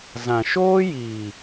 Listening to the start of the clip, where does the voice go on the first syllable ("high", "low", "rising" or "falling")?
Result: low